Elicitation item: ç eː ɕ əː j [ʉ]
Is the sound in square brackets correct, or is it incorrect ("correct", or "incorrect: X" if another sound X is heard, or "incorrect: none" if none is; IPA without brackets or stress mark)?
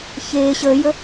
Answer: incorrect: ə